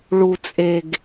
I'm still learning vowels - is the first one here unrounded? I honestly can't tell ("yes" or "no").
no